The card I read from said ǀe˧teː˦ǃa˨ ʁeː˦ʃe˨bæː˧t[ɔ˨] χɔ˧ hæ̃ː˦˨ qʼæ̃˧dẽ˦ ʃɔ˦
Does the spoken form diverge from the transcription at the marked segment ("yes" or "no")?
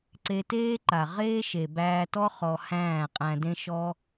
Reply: yes